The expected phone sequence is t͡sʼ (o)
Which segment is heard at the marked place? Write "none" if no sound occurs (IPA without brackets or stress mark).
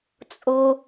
o